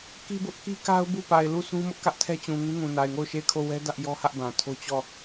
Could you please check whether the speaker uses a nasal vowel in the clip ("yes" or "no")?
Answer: yes